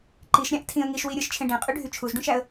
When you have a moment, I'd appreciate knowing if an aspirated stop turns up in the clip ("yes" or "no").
yes